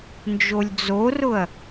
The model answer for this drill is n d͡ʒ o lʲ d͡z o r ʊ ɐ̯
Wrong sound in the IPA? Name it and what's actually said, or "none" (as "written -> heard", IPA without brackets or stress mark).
none